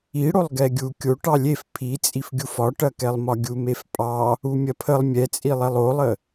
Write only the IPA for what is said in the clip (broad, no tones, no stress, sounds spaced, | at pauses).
i ɽ o lˠ ɡ ɛ ɡʲ u kʲ o ʈ ɑ lʲ e f pʰ i t͡sʼ i f ɡʲ u f ɒ ʈ ɐ k ɛ lˠ m ɒ ɡʲ u m e f pʼ ɑ | u mʲ ɐ pʰ ə lˠ mʲ ɛ t͡sʼ i lˠ ɛ lˠ o lˠ ə